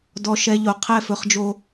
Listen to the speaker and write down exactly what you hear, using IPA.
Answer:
d ɔ˦ ʃ ɛ˦ ʎ o˨ qʰ ɛ˦˨ f ɵ˦ χ d͡ʒ o˦

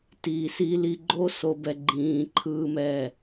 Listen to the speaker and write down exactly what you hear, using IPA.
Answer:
t iː˨ s i˧ l i˧ ɡ͡ǃ o˦ s o˧ b ɛ˧ ɡ͡ǃ ĩː˧ ǃʰ ɯː˦ m ɛ˦˨

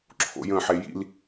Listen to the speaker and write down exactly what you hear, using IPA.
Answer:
ǁʰ o̰ j ə̃ ħ e j ḭ l

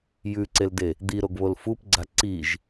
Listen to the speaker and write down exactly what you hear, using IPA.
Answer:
j ʉ ǀ e l d e | d̪ i ɾ o ɡ β o l f u p ɡ͡ǀ a ǀ i ʒ

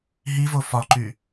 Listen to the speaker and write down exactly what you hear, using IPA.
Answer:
ɦ i v o f ɒ ǃ y

